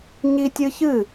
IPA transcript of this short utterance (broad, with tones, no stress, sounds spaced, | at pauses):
ɲ i˦ tʲ ɨ˦ ç ɨ˦˨